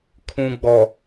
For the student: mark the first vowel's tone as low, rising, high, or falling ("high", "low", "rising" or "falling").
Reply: low